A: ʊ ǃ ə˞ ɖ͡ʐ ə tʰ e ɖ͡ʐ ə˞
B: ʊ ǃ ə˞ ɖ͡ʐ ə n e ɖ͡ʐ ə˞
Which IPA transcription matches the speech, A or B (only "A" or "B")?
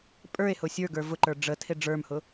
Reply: A